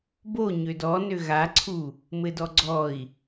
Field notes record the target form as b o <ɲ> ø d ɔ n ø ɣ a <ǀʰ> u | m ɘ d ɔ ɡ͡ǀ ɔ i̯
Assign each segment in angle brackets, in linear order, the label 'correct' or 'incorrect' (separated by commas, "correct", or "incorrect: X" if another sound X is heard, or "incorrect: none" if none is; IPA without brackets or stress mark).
correct, correct